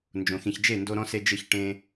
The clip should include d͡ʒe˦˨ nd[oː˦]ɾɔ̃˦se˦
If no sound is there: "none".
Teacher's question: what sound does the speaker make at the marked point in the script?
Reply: o˦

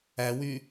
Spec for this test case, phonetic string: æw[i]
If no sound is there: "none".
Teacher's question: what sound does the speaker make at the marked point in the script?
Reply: y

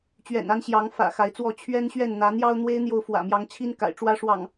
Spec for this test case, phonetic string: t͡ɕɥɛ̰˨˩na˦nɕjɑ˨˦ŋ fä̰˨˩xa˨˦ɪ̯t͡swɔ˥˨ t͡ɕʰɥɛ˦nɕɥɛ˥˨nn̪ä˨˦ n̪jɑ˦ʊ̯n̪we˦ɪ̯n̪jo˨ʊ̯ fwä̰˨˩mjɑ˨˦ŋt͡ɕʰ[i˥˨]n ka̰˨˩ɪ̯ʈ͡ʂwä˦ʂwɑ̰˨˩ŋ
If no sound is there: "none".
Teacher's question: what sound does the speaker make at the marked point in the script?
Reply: i˦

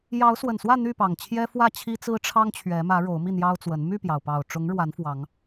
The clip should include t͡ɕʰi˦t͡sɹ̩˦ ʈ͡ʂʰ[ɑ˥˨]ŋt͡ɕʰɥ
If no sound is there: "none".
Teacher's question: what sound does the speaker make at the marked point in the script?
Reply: ɑ˦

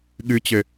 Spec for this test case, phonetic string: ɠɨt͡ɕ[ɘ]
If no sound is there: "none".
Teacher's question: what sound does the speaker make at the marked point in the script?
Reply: ɘ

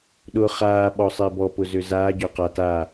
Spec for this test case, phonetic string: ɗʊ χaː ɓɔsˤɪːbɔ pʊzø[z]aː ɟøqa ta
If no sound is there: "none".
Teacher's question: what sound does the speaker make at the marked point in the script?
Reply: z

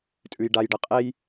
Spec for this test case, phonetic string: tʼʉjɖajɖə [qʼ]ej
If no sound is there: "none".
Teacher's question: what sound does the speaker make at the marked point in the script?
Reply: qʼ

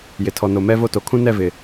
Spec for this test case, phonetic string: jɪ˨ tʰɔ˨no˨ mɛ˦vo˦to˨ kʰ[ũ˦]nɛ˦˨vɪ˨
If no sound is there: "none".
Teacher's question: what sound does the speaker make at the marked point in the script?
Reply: ũ˦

